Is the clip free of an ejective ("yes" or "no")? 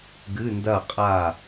no